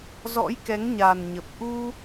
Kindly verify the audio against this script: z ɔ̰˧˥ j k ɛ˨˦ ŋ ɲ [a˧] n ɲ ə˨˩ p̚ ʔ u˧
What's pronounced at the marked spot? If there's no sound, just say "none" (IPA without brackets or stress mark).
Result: a˨˩